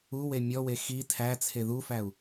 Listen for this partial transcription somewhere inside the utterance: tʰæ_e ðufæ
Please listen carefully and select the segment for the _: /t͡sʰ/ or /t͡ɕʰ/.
t͡sʰ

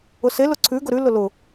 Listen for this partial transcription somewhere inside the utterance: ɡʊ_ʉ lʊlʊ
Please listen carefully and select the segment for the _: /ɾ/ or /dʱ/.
ɾ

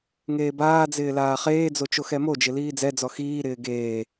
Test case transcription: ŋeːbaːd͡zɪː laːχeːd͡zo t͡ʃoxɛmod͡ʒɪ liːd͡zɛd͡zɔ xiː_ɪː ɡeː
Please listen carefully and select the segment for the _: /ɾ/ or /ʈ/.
ɾ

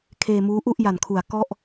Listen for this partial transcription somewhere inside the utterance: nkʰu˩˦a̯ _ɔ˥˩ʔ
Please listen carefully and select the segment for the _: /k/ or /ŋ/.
k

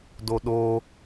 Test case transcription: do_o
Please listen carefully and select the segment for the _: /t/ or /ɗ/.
ɗ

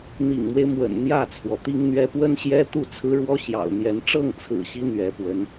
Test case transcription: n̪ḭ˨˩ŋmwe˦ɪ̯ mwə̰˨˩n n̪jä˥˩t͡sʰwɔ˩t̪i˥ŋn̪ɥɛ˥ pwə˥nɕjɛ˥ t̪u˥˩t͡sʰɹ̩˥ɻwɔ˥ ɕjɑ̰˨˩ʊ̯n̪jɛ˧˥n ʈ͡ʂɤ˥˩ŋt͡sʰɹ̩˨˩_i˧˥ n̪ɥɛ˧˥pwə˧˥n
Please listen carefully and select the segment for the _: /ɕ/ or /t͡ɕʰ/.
ɕ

